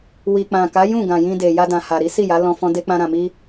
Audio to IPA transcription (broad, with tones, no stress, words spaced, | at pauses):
wi˨k͡pã˨ka˨˦ jũ˦˨ ɡã˨jĩ˧ de˨ja˧dã˨ha˨ ɾi˨˦si˦˨ja˨˦lɔ̃˧ fɔ̃˦de˦k͡pã˦ɾã˧ mi˦